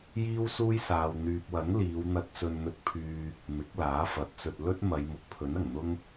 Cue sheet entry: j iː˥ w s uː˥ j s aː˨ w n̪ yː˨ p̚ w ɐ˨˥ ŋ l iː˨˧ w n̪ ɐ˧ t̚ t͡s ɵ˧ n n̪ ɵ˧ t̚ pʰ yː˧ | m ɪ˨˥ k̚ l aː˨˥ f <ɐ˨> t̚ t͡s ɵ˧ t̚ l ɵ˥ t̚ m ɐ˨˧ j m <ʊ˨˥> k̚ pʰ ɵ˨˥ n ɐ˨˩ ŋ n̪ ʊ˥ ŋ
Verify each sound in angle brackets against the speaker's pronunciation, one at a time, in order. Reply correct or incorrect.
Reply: incorrect: ɐ˨˥, correct

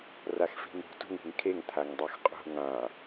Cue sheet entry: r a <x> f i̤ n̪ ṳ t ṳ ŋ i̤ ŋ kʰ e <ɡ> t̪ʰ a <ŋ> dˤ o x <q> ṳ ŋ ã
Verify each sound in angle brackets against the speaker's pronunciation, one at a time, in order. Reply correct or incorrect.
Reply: correct, incorrect: ŋ, correct, incorrect: qʼ

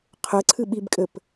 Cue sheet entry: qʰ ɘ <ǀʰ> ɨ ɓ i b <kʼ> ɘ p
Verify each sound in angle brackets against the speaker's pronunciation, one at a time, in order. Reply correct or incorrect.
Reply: correct, correct

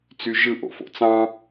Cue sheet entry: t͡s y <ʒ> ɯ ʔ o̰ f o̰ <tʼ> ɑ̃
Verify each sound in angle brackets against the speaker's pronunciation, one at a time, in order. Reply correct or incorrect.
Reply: correct, incorrect: t͡s

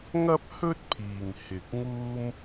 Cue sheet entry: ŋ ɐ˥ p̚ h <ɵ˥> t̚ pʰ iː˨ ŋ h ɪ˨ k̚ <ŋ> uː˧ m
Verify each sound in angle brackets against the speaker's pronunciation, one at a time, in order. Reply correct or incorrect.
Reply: correct, correct

